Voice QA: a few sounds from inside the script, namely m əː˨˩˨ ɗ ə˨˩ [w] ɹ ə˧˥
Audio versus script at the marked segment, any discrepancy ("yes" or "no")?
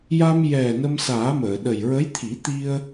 yes